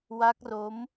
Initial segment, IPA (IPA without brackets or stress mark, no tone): w